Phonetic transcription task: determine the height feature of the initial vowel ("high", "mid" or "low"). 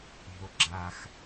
mid